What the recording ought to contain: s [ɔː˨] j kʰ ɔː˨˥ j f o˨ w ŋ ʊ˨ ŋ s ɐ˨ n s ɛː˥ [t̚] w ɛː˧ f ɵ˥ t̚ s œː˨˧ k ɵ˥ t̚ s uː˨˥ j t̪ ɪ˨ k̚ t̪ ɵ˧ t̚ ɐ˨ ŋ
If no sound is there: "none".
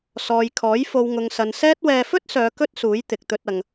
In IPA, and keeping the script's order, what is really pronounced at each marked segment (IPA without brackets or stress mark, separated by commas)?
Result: ɔː˨, t̚